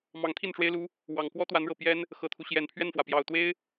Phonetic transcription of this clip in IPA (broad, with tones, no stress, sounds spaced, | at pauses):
m ɑ˧˥ ŋ t̪ʰ i˥˩ n ʈ͡ʂ w e˥ ɪ̯ l u˥ | w ɑ˨˩ ŋ k w ɔ˥ t̪ w a˧˥ n ɻ ɤ˨˩ p j ɛ˥ n | x ɤ˨˩ t̪ʰ u˦ ɕ j ɛ˨˩ n pʰ ɥ ɛ˥˩ n f w ä˩ p j ɑ˨˩ ʊ̯ t̪ w e˥ ɪ̯